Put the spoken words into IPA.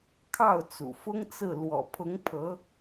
kʰɑ˥˩ʊ̯t͡sṵ˨˩fʊ˥ŋt͡sɹ̩˥˩ lwɔ̰˨˩pʰʊ˧˥ŋ pʰɤ˧˥

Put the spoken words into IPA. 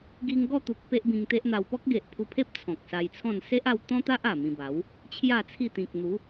ɡi˧ŋɡɔ˥˧t̪u˨k̚ pe˦ʔbĩ˧ŋt̪e˦ʔn̪a˧w pɔ˦k̚ɡe˨ʔpʰu˧pʰe˦p̚ t͡sʰɔ̃˨k̚sa˧jt͡sʰɔ̃˥˧n se˦ʔa˧wt̪ɔ̃˦t̪a˦ʔ a˨˩mĩ˧ba˨˦w | t͡ɕʰja˥˧t͡sʰi˥˧ t̪ĩ˨k̚n̪u˨˦

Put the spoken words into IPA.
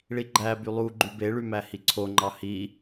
ɭiɡ͡ǃæby lˠu ɡ͡ǃybeɭy mæhiǀʰoŋ͡ǃɑ hi

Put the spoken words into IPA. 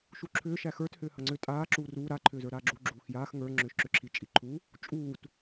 ʃuǁʰʏː ʃæxə˞t hʏːhɐŋ͡ǀʏ tʼaː ǁuːruː ɾa ǃʰʏːzə˞ɾaːɡ͡ǁu ɡ͡ǁuːxjaːx ŋə˞ ŋ͡ǁʏːʃǁʏǁʰi t͡ʃʼiǃʰu | t͡ʃʼuːt

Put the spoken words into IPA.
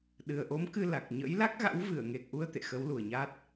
ɗɨ˨˩ə̯ʔo˨˦mkɨ˧ la˨˩k̚ ɲə̰˧˥jla˦˥k̚ɣa̰˧˥w vɨ˧˩ə̯ŋe˨˩k̚ʔu˧ə̯ t̪ḛ˧˨xə˨˦wlu˨˩ə̯ɲa˦˥t̚

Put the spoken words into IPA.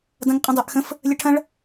dɐ̃ŋqʼə̃dˤœʔxə̃f | lʲəʈʰɐ̃ɭ

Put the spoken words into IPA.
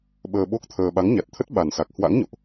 ɓəː˧ɓo˦˥k̚t̪ʰəː˧ ɓa˨˦ŋɲa˨˩t̚t̪ʰə˦˥t̚ ɓa˨˩nsa˨˩k̚ hwa̰˧˥ŋɲo̰˧˨ʔ

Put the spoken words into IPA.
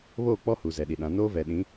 βoː˦˨k͡pɔ˦hu˨ zɛ˨ɗi˨ɗã˨˦ noː˦vɛ˨ɗĩ˨˦

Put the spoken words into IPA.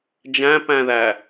d͡ʒæ̃pæ̃ðæ

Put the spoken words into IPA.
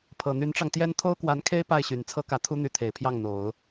pʰɤ˨˩n̪y˧˥nʈ͡ʂɑ˧ŋt̪jɛ˥n t̪ʰo˥ʊ̯kwa˧˥nkʰe˥ɪ̯ pa˥˩ɪ̯ɕy˨˩n t͡sʰɤ˥kä˧˥ t̪ʰu˥n̪y˧˥t̪ʰe˨˩ɪ̯pʰjɑ˥˩ŋ n̪o˨˩˦ʊ̯

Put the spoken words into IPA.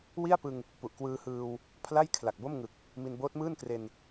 wi˥˩a̯pɯ˧ŋ | pu˨˩ʔkwɯː˧hɯː˧w | pʰla˥˩j kʰla˨˩k̚bo˥˩mŋɯ˨˩k̚ | mi˧nboː˦˥t̚mɯː˥˩nkre˧n

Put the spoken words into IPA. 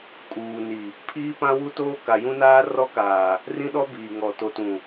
kʼuː˨ni˨ | pʰiː˦pã˦wu˦toː˦ ka˨jũ˦naː˦ rɔ˦kaː˨ | rĩ˦ɗɔ˦biː˨ŋɔ˨ to˨tũ˨

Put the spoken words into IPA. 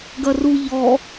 ɡɐru ʎɔ

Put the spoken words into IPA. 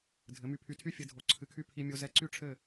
dʱɘ˩˥my˧pʰy˧tʰy˥ fʲɘ˧dʱo˩˥ǀʰɨ˩˥kʰy˥˩ pʰi˧mʲo˧ zɛ˧ǀy˥˩ ʈ͡ʂʰɘ˥˩

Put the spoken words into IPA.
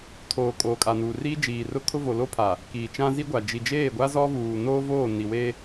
tʰoː˨ kʼoː˨kʼa˨nuː˨riː˦ d͡ʒiː˨rʊ˦kʰʊ˦ vo˨lo˦pʰa˨ | kiː˨t͡ʃã˦ zi˦ɡʷa˨ d͡ʒi˨d͡ʒeː˦˨ɡʷa˦ zɔ˦vuː˨noː˦ voː˦˨ni˨we˦

